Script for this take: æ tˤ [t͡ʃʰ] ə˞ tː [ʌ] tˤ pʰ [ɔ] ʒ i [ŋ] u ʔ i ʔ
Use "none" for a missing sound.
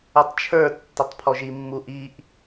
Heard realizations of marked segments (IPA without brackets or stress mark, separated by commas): t͡ʃʰ, ʌ, ɔ, mː